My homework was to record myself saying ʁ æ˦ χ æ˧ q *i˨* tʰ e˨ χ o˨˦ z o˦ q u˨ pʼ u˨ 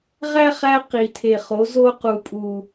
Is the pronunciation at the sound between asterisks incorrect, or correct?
correct